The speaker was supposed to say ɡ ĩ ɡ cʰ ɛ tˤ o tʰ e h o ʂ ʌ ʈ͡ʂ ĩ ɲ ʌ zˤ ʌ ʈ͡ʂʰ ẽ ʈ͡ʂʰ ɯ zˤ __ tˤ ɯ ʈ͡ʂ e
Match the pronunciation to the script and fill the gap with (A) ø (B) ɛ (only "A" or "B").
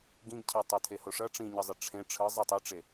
B